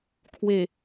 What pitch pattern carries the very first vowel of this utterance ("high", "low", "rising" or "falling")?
low